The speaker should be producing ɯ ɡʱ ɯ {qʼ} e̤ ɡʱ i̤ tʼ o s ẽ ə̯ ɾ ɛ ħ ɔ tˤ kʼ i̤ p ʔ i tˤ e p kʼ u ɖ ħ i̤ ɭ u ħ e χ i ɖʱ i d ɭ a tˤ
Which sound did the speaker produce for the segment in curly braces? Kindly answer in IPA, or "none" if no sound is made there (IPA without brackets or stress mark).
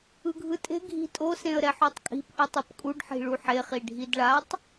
tʼ